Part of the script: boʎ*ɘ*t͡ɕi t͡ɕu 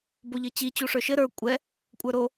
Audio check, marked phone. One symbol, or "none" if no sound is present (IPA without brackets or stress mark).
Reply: ɘ